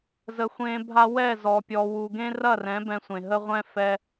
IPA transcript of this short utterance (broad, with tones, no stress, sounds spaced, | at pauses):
z ə˨ xʷ ẽ˧ bʱ a˦ w ɛ˦˨ z ɔ˨ pʲ ɔ˨ w u˨ ɡ ẽ˦ r ɐ˦˨ r ɛ̃˨˦ b ɛ̃˧ sʷ ẽ˨ ɦ ə˦ ʁʷ ɛ̃˦ f ɛ˧